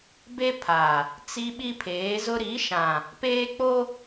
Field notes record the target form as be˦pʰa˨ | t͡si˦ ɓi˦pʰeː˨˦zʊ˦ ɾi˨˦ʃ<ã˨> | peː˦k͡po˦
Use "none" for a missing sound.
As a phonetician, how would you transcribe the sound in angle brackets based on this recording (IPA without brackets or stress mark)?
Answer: ã˨